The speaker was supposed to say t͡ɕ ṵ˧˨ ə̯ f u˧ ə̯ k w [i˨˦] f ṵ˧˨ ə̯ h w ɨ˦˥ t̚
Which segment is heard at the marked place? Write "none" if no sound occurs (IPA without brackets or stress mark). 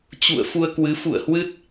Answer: ɨ˨˦